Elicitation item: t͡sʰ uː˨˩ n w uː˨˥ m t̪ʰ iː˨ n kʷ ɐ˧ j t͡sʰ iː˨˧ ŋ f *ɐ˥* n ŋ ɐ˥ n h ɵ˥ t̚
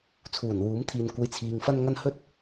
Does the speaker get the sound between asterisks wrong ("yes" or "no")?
no